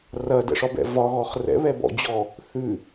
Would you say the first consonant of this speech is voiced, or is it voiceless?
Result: voiced